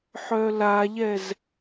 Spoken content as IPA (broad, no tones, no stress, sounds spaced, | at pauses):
ħ œ l a ʎ ɛ z